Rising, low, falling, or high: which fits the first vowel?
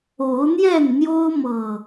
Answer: rising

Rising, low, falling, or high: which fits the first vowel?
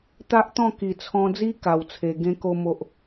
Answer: high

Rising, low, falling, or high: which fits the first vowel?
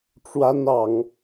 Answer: high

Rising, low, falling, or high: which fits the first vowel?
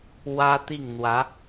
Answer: high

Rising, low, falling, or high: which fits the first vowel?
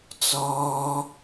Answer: high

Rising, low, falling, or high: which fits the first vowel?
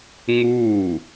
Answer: falling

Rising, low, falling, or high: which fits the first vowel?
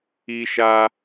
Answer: high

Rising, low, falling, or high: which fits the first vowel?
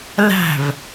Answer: falling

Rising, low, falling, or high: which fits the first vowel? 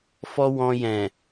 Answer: high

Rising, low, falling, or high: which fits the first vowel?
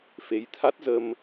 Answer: rising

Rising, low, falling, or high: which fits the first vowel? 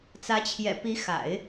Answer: rising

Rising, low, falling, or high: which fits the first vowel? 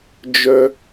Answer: high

